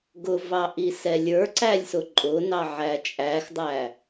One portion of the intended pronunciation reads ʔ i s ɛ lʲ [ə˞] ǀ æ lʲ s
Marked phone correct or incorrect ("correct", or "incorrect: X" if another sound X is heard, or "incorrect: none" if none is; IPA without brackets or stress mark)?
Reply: correct